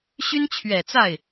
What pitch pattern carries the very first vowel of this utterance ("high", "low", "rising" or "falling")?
high